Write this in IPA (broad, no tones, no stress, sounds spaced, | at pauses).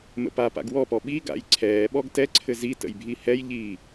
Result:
m ə̰ p a p a̰ ɡ w ɔ p ɔ ɓ i ɡ a̰ j ǀʰ ɛː ɓ ɔ ɡ t ɛ ǀʰ ɘ z i t ə̰ j bʱ i h ɛ j ʎ iː